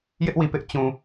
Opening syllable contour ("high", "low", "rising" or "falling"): high